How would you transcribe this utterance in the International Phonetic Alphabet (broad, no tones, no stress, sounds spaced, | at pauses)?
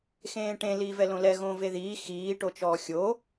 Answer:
x ẽː ʈ ẽ l iː v ɛ l õ l ɛ ɣ õː v e ð iː x iː ʈ o t͡ʃ ɔː xʲ o